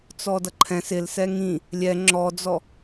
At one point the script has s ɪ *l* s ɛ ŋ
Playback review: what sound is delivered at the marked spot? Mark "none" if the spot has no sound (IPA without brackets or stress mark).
l